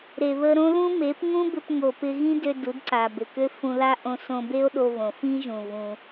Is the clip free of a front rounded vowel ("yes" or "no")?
no